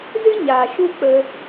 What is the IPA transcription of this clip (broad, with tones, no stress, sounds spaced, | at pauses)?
z ɨ˦ ɲ aː˨ ʃ u˦ k͡p ə˧